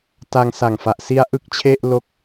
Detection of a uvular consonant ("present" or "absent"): absent